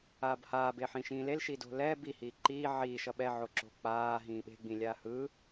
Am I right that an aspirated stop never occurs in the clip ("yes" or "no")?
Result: yes